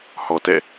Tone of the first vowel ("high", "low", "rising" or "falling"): low